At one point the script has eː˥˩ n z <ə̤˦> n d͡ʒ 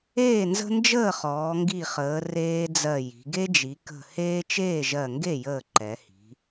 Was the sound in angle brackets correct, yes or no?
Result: yes